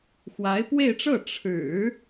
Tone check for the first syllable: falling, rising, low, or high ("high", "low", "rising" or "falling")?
rising